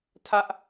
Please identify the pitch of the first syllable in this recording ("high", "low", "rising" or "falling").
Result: high